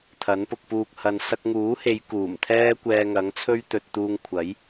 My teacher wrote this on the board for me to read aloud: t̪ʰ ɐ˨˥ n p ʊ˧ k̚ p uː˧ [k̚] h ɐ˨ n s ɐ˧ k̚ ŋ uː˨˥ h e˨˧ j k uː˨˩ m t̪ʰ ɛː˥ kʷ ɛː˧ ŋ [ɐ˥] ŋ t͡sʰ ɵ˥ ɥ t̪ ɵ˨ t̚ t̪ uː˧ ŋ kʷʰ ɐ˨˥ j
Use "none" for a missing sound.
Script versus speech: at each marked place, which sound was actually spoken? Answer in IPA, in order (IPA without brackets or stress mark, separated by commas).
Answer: k̚, ɐ˨˥